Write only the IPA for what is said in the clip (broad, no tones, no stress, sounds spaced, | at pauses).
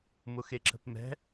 m ʊ x e ǁ ə̤ p m ɛ̤